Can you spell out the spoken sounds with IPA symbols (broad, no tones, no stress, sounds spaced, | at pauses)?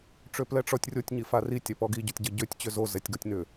ʈ͡ʂ ø p l ɛ ʈ͡ʂ ɔ tʲ rʲ o tʲ ɲ i f a r i tʲ ɛ p ɔ ɡ i ɟ ɔ tʲ ɟ ə ɟ ø tʲ t͡ɕ ʏ z o z ɛ tʲ ɡ ɔ tʲ n ʏ